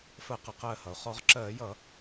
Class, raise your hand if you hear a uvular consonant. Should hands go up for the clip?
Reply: yes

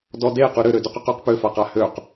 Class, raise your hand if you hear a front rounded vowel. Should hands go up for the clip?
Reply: yes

